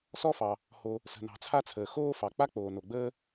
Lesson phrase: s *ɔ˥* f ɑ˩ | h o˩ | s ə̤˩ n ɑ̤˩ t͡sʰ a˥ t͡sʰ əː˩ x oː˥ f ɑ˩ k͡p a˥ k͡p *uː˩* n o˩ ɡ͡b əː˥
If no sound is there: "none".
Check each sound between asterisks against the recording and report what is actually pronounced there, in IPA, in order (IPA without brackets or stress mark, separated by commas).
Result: ɔ˥, oː˩